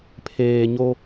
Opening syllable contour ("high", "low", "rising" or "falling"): low